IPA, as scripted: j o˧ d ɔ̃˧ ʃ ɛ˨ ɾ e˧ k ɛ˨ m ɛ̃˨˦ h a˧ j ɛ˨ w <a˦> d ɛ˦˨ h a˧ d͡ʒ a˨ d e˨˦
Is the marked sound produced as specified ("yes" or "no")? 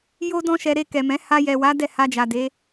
no